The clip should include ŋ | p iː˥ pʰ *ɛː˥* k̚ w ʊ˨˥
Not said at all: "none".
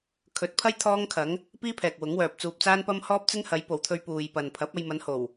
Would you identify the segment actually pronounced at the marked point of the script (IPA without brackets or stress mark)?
ɛː˨